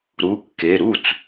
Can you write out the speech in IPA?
ɾ u˩˧˩ kː e˩˧˩ ɾ u˥˩ t͡s

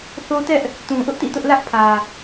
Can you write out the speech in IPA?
θ o˦ t ɛ˦ ʔ | t ũ˨ ʔ ʊ˦ ʔ t ḭ˦˨ t ʊ˦ ʔ l ä˦ ʔ pʰ ä˨

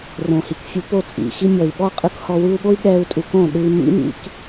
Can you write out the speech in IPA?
r õ˨ h i˨ k fʲ u˧ p o˦˨ t͡sʼ ḭ˨ x i˧ mʲ ɔ˨ i̯ ɓ ɔ˦ qʼ ɯ˧ k h ɔ˧ w ɯ˧ u̯ ɠ o˦ i̯ ɠ ɛ˦ u̯ tʼ u˧ k õ˦˨ ɗ ɯ˧ i̯ m ḭ˦ m ḭ˦ k

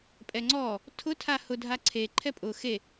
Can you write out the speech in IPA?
pʼ ɛ ŋ͡ǀ ɔ | tʰ ʊ tʰ a h ʊ dʱ a ǀʰ e ǃʰ ɛ pʼ ʊ x e

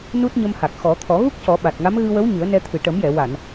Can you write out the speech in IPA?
n u˦˥ t̚ ɲ ə˧ m h a˨˩ k̚ x ɔ˨˩˦ t̪ʰ ɔ˨˩˦ ɣ u˦˥ k̚ c ɔ˨˩˦ ɓ a˨˩ t̚ ŋ a˧˥ m ɣ ɨ˧ w ə˧˥ w ɲ ɨ˨˩˦ ə̯ n ɛ˧ t̪ʰ ɨ˨˩ ʈ ə˨˩˦ m j ɛ˨˩˨ w a˨˩˨ n

